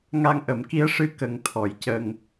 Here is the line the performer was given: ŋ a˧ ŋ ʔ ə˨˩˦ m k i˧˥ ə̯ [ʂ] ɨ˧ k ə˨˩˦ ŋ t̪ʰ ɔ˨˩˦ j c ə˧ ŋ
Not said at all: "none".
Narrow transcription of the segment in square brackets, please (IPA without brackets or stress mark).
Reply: ʂ